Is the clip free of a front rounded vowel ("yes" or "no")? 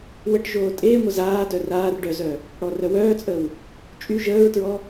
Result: no